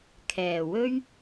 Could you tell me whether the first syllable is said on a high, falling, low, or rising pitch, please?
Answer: low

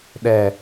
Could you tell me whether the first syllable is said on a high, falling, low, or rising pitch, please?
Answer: low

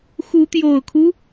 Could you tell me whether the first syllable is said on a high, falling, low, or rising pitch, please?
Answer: rising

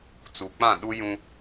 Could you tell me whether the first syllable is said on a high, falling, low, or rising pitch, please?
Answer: low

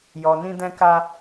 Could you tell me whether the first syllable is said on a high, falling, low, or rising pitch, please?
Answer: low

